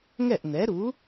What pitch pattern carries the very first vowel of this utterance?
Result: falling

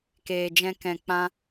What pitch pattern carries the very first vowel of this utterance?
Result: low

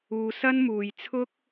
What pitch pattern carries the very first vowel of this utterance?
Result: low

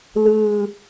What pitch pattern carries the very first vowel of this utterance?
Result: low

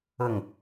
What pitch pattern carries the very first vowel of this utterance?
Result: falling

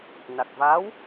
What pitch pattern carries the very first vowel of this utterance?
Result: low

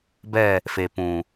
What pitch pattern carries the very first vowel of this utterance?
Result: falling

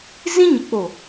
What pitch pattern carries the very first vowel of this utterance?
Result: high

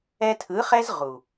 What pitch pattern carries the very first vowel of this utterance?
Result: high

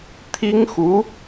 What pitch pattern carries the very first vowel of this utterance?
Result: high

